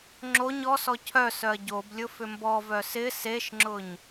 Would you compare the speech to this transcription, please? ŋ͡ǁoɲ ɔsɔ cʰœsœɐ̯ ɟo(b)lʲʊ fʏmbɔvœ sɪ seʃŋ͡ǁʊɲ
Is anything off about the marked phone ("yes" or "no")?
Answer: no